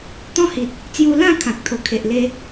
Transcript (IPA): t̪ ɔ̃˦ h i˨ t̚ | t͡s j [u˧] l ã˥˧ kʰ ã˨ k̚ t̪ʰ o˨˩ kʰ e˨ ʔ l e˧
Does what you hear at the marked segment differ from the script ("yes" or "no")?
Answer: no